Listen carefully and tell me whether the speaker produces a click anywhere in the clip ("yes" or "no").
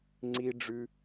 yes